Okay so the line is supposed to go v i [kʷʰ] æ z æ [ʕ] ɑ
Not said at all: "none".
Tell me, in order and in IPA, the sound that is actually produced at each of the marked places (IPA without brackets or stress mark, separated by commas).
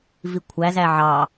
kʷʰ, ʕ